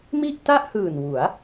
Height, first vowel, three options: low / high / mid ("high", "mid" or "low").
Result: high